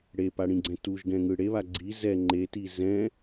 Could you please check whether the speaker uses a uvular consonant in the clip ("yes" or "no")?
no